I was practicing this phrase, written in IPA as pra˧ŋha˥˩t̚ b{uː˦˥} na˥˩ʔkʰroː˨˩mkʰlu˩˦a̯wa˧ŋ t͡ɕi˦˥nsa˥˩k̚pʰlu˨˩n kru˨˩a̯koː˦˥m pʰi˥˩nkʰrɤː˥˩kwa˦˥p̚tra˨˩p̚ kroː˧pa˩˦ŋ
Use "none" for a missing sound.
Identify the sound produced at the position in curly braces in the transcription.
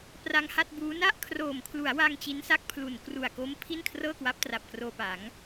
uː˦˥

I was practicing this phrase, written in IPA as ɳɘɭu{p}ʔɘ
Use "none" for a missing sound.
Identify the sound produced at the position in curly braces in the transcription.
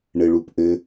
p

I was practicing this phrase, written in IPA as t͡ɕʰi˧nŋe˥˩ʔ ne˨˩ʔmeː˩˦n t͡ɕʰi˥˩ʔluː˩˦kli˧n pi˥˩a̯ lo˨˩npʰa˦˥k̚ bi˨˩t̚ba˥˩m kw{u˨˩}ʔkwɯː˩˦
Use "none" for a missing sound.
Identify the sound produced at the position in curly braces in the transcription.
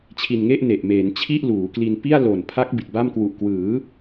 u˨˩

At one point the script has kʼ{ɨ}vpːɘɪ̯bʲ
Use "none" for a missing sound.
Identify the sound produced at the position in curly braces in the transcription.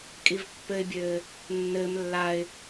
i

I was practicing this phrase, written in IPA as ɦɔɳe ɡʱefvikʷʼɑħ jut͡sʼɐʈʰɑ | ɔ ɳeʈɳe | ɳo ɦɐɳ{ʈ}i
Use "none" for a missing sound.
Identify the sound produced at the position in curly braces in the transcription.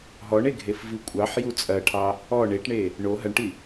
ʈ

